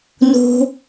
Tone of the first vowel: low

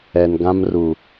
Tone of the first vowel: low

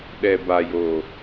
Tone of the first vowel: low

